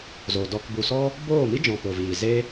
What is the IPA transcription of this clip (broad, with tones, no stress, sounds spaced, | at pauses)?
z o˨ d ɔ˧ k b u˨ s ɔ˦ | b oː˦˨ m i˦ d͡ʒ ɔ̃˧ p o˨ v iː˨ z e˦